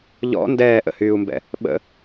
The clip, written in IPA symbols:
ʎ ɔ̰ n d ɛː ʔ ə̰ h yː u̯ m b ɛ̰ | ɓ ə̰

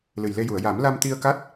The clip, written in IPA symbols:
l ɨ˨˩ j l e˧ j u˨˩˨ ə̯ j a˨˩˦ m l a˧ m t̪ i˧ ə̯ k a˦˥ t̚

